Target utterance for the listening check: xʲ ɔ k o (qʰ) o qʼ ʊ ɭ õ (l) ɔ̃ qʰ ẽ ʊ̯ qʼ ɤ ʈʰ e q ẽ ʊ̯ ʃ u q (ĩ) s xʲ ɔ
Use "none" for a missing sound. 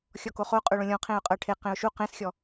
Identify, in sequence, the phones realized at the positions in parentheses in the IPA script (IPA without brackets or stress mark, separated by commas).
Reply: χ, lʲ, ẽ